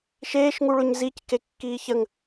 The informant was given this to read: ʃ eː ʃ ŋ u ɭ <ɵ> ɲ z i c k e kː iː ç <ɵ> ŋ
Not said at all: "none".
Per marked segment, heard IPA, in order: ɵ, ə

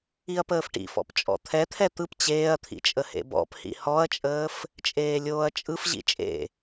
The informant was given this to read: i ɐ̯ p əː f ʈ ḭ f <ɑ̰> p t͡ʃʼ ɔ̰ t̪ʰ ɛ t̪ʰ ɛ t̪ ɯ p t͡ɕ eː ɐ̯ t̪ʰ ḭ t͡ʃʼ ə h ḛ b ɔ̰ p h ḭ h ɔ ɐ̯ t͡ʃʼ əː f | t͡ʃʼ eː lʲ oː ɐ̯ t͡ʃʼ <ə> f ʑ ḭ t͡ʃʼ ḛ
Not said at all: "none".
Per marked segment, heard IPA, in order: ɔ̰, ɯ

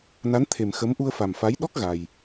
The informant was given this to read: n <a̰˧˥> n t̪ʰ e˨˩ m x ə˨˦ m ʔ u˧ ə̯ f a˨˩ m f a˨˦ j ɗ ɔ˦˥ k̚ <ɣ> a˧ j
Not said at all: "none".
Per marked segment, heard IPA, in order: a˨˦, ɣ

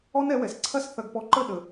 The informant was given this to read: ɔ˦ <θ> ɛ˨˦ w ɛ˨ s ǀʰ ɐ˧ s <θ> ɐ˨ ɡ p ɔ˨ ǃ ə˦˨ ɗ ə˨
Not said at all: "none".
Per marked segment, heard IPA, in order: n, θ

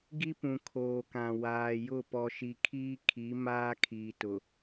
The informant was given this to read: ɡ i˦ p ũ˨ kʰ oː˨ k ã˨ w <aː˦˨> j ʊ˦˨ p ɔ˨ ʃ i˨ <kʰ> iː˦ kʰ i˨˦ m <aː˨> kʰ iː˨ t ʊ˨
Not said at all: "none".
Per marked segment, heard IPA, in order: aː˨, kʰ, aː˦

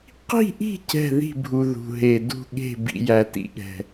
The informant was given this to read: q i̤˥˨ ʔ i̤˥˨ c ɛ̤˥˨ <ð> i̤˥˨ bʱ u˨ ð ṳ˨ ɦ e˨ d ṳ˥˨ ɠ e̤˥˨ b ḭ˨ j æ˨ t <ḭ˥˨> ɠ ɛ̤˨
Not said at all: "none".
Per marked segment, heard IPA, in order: ð, ḭ˨

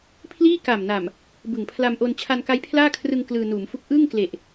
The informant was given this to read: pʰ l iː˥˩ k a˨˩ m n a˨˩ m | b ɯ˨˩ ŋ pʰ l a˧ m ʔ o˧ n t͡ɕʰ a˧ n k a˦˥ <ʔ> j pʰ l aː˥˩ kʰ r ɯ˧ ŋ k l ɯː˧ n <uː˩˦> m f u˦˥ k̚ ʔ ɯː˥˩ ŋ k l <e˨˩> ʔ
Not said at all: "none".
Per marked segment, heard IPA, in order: none, uː˩˦, e˨˩

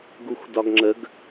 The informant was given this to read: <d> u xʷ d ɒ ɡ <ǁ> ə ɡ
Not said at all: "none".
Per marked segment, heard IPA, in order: ɡ, ŋ͡ǁ

